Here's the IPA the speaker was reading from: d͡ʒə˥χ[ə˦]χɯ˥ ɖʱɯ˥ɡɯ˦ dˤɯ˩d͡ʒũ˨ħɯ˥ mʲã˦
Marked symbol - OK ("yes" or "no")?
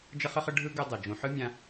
no